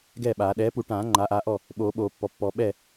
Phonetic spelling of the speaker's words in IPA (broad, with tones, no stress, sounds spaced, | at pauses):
ɡ ɛ˥˩ ɓ aː˨˩˦ ɗ ɛː˩˥ p u˨˩˦ ʈ ãː˨˩˦ ŋ͡ǃ aː˩˥ ʔ aː˩˥ ʔ ɔ˥˩ | ɓ oː˨˩˦ ɓ oː˨˩˦ pː ɔ˩˥ pː ɔ˨˩˦ ɓ ɛ˥˩